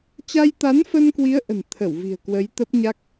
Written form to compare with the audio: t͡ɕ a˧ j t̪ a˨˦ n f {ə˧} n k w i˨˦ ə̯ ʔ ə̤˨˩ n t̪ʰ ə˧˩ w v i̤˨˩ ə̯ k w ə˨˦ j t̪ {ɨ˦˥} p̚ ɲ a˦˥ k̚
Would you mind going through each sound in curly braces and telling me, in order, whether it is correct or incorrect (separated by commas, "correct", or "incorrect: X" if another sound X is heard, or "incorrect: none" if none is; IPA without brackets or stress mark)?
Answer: correct, incorrect: ə˦˥